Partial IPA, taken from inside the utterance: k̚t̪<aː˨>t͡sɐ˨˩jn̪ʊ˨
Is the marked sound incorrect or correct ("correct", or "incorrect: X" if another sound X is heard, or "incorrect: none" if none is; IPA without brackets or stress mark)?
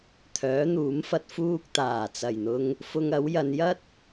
incorrect: aː˨˩